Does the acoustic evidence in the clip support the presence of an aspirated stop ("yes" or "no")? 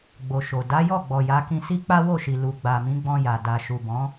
no